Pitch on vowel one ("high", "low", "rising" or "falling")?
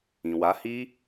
low